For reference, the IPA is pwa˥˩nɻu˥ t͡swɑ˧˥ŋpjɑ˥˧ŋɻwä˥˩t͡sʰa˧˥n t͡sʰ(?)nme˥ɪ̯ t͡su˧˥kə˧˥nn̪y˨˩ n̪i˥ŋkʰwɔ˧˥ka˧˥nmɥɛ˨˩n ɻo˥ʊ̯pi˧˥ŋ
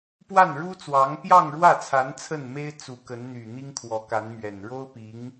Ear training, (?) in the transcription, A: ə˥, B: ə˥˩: B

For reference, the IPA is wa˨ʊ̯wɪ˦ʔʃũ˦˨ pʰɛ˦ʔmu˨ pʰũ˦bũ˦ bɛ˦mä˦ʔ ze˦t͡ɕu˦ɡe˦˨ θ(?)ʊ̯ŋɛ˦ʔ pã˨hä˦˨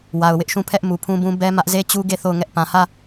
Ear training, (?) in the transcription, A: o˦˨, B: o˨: A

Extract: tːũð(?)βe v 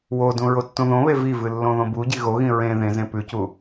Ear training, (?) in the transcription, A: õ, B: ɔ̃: A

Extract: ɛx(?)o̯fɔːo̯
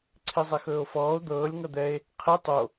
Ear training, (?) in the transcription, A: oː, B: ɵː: B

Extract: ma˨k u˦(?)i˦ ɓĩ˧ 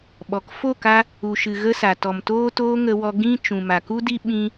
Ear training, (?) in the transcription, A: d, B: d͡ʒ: A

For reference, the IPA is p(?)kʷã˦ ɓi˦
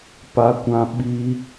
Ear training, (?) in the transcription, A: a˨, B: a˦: B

